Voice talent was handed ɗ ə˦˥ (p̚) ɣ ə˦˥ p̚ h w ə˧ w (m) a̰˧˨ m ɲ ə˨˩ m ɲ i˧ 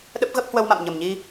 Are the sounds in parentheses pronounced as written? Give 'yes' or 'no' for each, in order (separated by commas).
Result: yes, yes